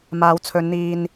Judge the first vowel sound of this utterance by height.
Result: low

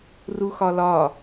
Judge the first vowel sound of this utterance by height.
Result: high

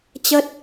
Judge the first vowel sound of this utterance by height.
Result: mid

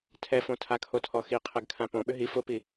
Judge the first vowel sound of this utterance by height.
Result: mid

